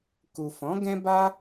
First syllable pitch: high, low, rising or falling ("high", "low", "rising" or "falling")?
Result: low